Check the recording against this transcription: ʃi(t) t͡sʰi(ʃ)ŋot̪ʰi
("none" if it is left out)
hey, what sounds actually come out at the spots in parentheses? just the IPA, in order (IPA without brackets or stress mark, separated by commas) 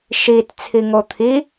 t, none